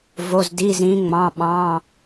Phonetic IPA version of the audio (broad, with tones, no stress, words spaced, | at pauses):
vo˧˥˧zdi˧˥˧ zĩ˧˥ ŋ͡mɑ̃˧˥˧ɓɑ̃˧˥˧